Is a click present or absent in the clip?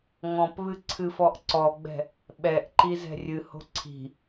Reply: present